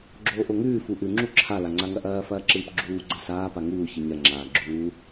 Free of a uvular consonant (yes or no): yes